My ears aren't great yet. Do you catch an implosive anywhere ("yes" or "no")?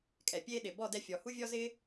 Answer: yes